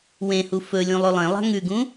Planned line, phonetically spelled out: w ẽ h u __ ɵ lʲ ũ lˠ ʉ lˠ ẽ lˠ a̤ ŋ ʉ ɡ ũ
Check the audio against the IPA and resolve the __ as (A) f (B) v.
A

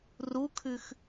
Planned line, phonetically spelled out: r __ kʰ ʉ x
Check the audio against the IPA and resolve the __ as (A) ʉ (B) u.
B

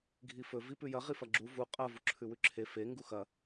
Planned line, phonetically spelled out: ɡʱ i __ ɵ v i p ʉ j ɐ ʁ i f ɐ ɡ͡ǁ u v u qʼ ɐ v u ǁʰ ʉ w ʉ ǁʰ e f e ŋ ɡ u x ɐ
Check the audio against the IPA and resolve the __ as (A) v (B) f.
B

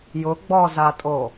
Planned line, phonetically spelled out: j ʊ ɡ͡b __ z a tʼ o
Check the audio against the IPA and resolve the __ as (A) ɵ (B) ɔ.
B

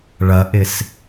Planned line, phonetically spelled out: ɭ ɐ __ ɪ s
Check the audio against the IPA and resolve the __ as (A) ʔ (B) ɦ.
A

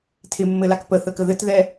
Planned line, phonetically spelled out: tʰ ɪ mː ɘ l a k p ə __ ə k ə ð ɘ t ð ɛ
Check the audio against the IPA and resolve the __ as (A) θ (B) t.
A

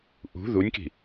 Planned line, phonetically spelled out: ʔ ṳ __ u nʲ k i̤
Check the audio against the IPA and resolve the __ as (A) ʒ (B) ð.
B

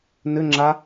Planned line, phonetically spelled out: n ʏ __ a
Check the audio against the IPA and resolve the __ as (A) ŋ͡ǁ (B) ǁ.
A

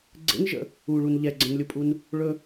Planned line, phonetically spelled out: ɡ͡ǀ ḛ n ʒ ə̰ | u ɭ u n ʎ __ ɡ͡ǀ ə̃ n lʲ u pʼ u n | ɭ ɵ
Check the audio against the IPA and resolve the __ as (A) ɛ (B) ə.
A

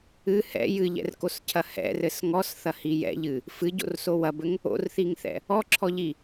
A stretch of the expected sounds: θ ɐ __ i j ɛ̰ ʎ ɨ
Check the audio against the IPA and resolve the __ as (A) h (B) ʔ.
A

